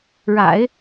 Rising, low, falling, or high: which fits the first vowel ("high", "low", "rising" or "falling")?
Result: low